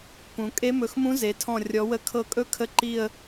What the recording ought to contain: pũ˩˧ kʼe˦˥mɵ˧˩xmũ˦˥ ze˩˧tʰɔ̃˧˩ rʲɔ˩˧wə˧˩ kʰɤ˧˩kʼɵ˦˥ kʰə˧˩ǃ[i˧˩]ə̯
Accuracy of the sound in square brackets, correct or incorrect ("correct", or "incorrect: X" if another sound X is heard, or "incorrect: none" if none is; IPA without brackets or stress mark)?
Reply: correct